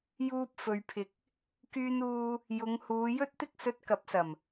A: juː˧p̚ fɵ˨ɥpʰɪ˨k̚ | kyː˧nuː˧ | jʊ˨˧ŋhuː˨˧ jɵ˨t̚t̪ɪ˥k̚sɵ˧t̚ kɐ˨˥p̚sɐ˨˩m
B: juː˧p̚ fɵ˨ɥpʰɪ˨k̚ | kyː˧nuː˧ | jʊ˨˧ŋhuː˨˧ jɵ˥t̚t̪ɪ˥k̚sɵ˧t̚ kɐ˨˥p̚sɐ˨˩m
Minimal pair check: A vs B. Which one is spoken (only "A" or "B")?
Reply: B